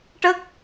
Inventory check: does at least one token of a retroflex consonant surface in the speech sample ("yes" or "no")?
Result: yes